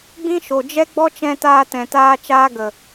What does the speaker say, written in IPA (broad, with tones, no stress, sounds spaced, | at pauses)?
ɡ͡b ĩ˦ ʃ o˨ d͡ʒ ɛ˦ ɡ͡b ɔ˦ t͡ʃ ɛ̃˧ t aː˧ t ɛ̃˨ t aː˧ t͡ʃ aː˦ ɡ ə˨